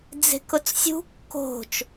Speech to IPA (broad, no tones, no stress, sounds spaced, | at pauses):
d͡z e̤ k ʊ t͡s sʲ ṳ kː o̤ t͡ʃ